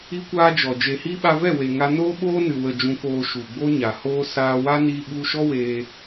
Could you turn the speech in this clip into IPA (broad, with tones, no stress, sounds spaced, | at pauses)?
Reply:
i˦ kʷ aː˦ d͡ʒ ɔ˨ d͡ʒ e˨ h i˧ ɓ a˧ v ɛ˦˨ w e˨ ŋ a˧ n oː˦ ɓ oː˦ n ɨ˨ w ə˨ d͡ʒ ũ˨ k oː˨ ʃ u˨ ɡ͡b o˦ ɲ a˨ h oː˦ s aː˧ w a˦ n iː˧ ɓ u˧ ʃ ɔ˦ w eː˧